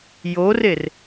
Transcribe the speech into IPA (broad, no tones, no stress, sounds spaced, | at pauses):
j oː r e r